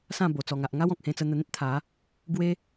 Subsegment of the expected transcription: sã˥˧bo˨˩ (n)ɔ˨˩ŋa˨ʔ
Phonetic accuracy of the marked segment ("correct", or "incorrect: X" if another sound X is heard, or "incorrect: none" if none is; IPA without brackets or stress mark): incorrect: t͡s